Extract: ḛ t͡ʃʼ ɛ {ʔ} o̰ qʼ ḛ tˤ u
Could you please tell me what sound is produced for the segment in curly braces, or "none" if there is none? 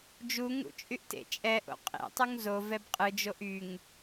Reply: ʔ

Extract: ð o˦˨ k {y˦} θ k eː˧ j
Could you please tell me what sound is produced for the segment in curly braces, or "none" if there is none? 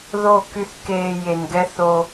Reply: y˦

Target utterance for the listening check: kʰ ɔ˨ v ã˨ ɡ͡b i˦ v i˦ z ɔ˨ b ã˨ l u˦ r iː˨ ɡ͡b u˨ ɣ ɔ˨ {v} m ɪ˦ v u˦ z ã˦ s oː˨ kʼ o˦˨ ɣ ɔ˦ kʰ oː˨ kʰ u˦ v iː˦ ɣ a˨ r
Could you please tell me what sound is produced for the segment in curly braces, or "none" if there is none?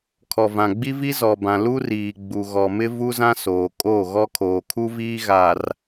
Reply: none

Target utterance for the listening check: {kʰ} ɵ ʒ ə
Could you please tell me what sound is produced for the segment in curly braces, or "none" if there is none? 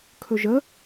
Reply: kʰ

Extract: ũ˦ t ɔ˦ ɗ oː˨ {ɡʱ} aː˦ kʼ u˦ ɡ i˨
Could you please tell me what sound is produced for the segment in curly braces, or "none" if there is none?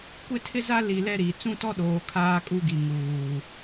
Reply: kʰ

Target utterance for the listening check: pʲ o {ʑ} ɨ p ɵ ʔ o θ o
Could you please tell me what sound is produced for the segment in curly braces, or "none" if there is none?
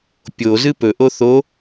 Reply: z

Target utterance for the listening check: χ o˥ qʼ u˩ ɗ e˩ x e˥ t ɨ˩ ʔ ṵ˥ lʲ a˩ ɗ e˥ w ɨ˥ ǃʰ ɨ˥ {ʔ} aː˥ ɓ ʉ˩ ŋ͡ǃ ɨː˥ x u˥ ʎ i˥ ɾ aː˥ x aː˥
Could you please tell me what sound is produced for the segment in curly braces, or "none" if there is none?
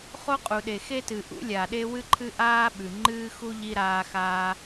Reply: ʔ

